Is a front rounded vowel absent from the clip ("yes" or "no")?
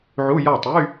no